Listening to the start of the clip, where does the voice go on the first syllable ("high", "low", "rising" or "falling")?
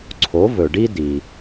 rising